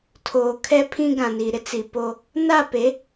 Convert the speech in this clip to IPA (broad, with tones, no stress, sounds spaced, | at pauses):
tʰ oː˨ kʰ ɛ˦ pʰ ĩ˦ ɡ ã˨ n i˨ ɾ ɪ˦ t͡s i˨ p o˦ | n a˦˨ p e˨˦